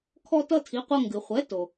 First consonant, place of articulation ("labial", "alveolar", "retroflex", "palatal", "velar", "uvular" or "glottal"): velar